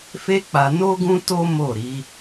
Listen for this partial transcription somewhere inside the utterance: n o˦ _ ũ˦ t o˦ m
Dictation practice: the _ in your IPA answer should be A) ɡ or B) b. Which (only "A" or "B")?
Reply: A